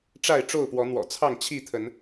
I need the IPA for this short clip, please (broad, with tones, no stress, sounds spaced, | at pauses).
ʈ͡ʂ a˥˨ ɪ̯ ʈ͡ʂ o˥˨ ʊ̯ p w ɔ˨˦ n̪ w ɔ̰˨˩ t͡sʰ ɑ˥˨ ŋ t͡ɕʰ i˥˨ t̪ʰ ə˨˦ n